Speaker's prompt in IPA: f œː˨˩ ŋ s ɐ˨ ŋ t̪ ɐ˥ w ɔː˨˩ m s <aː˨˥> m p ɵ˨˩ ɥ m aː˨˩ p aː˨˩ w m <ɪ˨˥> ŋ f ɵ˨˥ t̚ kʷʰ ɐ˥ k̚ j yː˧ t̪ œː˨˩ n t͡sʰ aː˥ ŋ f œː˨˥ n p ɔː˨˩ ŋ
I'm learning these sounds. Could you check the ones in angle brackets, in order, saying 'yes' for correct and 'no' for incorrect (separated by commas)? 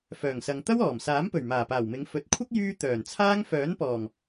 yes, no